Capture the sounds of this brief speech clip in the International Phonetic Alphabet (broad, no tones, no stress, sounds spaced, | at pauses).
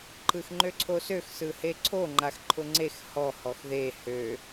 ǃ ɯ x ŋ͡ǃ ø ǀʰ o s ø x s ɯ h e ǀʰ o ŋ͡ǃ a x ǃʰ ʊ ŋ͡ǀ e x h ɔ h ɔ x ð e h ø